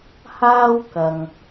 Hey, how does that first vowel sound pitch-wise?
high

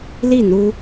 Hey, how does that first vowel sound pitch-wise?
falling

